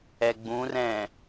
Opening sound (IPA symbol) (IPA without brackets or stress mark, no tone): ɛ